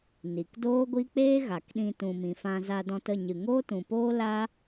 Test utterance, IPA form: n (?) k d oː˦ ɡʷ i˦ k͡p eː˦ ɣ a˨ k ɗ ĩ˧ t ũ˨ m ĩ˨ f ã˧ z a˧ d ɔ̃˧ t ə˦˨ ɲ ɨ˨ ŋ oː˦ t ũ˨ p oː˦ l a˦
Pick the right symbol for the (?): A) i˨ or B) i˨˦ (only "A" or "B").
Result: A